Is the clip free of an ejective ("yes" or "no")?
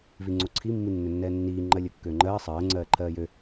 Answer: yes